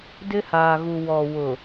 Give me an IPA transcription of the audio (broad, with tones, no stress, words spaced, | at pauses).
dɪ˦haː˨ɣu˨ wɔ˨wʊ˨